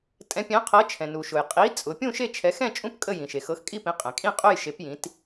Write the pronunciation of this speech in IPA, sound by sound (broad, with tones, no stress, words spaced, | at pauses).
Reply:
tʼɛ̃˨˦pʲɛ̃˨˦qʰɤ˨˦t͡ʃʰɛ̃˩ nu˩ʃʊ˩j qʼi˨˦ t͡sʼʊ˨˦ pʲũ˥˧ ʃe˥˧t͡ʃʰɛ˨˦ xɛ̃˥˧t͡ʃʼũ˥˧p kʼə˥˧jĩ˩ʃe˩ xɤ˨˦xkʼi˥˧pĩ˨˦qʼɛ̃˩ kʼĩ˥˧qʼʊ˥˧jʃe˨˦pjĩ˨˦t